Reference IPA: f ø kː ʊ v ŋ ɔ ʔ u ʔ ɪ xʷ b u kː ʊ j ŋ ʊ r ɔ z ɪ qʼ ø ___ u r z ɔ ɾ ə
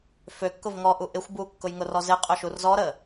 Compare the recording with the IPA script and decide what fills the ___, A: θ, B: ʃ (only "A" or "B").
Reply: B